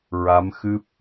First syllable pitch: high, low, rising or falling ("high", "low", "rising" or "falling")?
rising